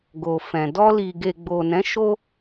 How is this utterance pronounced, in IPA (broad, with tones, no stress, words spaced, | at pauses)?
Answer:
ɡo˨fɛ̃˨ dɔ˧li˨ɡe˨ ɡ͡bo˨nɛ̃˨˦ʃo˦